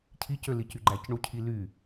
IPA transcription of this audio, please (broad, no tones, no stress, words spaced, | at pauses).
cʰicølicy ɡ͡ǃæcɳucʰi ly